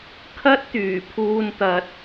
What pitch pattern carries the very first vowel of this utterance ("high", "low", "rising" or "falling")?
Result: high